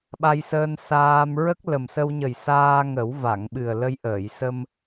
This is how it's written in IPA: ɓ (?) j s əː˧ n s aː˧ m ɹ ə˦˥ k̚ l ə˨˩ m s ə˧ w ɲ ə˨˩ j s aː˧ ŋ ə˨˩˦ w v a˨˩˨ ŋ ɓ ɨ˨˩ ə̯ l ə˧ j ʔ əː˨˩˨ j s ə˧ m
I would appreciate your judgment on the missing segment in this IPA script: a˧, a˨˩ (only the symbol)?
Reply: a˧